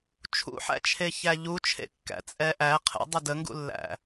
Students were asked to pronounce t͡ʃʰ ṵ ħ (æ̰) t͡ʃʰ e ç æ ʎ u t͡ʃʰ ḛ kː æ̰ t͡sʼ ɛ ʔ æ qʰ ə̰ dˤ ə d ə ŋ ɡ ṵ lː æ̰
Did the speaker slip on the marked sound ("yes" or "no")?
no